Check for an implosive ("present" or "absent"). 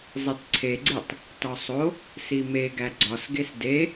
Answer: absent